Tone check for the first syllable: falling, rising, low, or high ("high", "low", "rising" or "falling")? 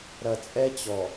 low